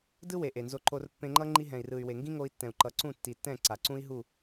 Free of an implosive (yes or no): yes